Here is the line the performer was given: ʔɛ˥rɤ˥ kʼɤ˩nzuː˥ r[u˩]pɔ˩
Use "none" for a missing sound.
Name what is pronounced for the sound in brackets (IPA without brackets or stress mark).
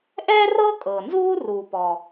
u˩